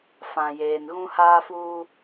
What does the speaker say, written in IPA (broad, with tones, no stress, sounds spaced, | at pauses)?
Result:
f ã˨ j eː˨ n ɣ ũ˦ h aː˦ f uː˦